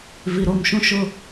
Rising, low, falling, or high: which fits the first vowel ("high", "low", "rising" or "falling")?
low